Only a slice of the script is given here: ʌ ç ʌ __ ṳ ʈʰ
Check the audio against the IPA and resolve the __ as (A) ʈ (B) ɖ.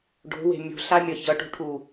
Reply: A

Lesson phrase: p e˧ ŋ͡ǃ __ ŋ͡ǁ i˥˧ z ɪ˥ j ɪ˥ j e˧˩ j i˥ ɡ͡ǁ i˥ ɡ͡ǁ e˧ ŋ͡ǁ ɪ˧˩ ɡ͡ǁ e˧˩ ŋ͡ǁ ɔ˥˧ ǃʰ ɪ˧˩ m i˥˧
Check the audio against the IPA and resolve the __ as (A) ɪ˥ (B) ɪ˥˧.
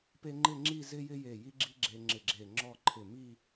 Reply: B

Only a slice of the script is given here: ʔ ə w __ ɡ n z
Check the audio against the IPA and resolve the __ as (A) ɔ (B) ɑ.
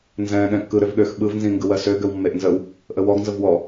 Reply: A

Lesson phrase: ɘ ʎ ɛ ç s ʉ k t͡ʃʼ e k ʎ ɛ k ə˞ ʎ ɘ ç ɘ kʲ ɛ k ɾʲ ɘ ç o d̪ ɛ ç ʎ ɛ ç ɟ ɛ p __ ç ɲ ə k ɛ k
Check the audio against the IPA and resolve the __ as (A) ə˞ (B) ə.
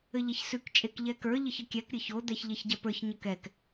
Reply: A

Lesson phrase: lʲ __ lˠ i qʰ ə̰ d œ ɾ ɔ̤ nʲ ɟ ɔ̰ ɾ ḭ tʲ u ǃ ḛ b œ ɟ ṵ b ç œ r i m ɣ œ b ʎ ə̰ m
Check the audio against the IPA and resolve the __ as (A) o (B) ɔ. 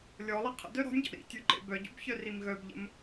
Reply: B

